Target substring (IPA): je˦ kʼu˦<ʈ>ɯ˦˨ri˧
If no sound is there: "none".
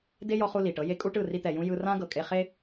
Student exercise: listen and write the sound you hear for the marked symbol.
ʈ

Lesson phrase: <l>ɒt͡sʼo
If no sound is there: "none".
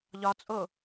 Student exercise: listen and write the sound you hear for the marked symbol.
ʎ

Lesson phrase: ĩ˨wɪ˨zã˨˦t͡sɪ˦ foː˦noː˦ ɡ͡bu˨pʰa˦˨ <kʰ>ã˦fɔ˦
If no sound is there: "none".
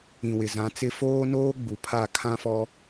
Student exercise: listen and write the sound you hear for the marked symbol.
kʰ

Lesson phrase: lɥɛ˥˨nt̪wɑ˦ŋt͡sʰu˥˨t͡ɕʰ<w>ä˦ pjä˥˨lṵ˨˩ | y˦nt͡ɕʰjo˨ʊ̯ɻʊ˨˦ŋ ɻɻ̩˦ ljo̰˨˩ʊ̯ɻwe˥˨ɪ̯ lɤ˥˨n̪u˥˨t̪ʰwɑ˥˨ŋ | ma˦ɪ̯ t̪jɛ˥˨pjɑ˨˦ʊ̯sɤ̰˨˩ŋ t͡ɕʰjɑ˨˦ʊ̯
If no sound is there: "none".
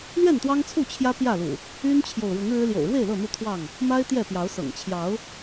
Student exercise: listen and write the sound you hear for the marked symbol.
j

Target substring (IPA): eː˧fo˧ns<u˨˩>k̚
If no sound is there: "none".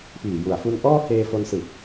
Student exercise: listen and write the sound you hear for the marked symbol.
ɯ˨˩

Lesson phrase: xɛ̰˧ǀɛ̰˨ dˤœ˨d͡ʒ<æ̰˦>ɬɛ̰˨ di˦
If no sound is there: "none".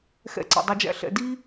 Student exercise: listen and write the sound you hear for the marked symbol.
æ̰˦˨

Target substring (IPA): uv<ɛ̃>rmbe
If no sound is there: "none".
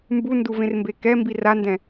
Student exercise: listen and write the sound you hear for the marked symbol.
ẽ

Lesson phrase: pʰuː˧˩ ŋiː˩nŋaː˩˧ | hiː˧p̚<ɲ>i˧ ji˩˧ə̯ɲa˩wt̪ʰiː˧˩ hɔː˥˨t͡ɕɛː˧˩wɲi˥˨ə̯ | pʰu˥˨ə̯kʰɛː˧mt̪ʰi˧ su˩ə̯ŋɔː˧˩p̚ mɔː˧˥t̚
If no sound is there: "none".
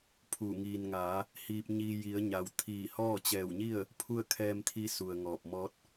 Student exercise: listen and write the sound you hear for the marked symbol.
ɲ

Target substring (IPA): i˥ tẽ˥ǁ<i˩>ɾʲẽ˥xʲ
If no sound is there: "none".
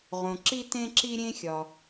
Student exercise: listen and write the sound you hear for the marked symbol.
i˥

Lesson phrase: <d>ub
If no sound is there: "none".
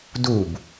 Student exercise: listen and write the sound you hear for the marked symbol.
d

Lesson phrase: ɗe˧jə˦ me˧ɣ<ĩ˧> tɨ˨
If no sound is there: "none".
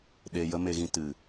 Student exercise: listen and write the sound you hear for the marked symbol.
ĩ˧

